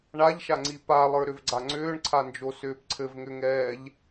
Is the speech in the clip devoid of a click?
no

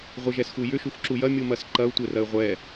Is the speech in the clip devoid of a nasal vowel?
yes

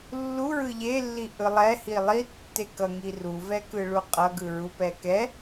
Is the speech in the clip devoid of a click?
yes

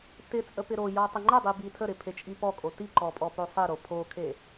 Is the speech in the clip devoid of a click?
no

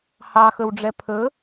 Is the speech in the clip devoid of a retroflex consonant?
no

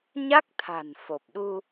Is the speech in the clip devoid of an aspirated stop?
no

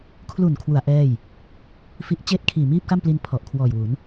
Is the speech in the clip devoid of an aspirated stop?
no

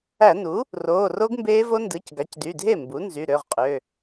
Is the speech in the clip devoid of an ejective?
no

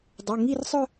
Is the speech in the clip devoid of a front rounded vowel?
no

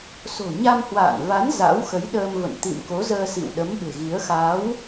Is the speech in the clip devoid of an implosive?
no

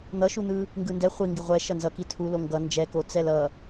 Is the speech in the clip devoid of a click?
yes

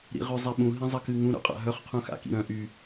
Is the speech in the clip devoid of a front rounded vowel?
no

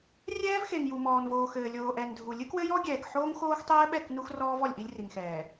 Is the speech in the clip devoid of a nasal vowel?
yes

